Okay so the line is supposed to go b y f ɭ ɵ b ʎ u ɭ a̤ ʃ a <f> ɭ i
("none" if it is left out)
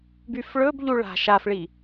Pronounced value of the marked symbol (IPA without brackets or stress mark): f